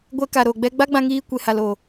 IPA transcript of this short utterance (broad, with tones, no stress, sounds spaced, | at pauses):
ɡʷ ɛ˧ k a˨ ɾ o˨ ɡ͡b ɛ˦ ɡ͡b a˦ ɡ͡b ã˧ ŋ iː˧ kʷ e˨ h a˨ l o˨